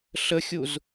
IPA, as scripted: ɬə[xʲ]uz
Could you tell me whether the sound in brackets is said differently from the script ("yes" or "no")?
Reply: no